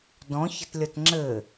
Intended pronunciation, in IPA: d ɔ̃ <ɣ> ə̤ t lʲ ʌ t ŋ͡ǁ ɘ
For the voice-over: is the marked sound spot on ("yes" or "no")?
no